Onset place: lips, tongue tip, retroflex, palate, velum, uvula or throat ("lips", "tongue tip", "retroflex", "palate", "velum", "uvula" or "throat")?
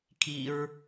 velum